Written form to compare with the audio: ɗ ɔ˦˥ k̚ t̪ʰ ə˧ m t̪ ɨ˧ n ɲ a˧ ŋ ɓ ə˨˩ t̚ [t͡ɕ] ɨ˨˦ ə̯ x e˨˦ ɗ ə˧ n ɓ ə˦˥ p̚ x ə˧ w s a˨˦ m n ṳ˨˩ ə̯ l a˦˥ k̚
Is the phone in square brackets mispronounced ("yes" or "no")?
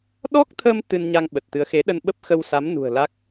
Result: yes